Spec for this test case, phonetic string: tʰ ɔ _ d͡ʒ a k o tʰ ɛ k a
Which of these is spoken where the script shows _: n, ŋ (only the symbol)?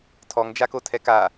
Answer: ŋ